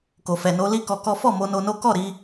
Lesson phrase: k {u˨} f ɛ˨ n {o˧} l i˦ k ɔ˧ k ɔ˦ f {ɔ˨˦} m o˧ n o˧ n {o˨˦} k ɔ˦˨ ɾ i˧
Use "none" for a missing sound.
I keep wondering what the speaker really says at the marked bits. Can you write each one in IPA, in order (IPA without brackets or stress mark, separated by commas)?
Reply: o˨, o˧, ɔ˦˨, o˦